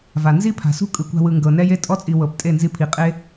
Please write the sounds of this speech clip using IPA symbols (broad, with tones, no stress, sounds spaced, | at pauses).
v a˨ n z i˦ pʰ a̤˨ s ṳ˦ kʼ ɯ˧ kʷ a̤˦ w ɯ˧ ŋ ɡ ɤ˨ n ɛ˦ j e˦ tʼ ɔ˦ t͡sʼ i˨ w ɤ˨ p tʼ e˦˨ n z i˧ pʰ i˨ qʼ e˦